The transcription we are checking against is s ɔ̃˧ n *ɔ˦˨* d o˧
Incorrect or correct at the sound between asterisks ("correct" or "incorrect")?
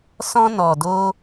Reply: incorrect